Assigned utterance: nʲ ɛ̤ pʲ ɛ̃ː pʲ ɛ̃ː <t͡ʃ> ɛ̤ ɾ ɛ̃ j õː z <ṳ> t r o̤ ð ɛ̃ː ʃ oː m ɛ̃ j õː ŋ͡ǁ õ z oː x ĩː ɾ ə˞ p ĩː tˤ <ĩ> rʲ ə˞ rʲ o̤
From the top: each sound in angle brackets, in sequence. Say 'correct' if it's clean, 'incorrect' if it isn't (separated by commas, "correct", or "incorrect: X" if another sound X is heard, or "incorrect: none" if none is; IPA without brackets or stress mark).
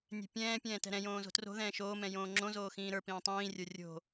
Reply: incorrect: t, incorrect: o̤, incorrect: ĩː